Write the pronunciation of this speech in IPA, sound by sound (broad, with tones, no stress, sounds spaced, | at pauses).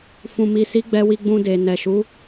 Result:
f ũ˨ m i˨ s i˨˦ ɡ͡b ɛ˧ w i˧ ɡ͡b ũ˧ d e˨ n ɛ˨ ʃ u˨˦